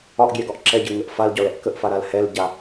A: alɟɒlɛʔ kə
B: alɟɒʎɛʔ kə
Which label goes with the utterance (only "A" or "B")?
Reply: A